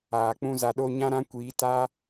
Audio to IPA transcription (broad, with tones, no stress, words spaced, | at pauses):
aː˨k͡pũ˦za˧ɗo˦ ɲã˦ɾã˦kʷiː˨˦ta˦